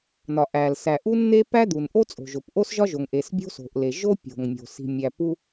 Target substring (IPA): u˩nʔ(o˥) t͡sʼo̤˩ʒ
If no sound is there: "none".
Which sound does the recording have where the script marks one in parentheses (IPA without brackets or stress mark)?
o˥